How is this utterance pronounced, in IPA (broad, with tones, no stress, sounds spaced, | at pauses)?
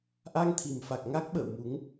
ʔ a˧ ŋ t̪ʰ i˨˩ m f a˨˩ k̚ ŋ a˦˥ k̚ ɓ ə̰ː˧˨ w m u˨˦ ŋ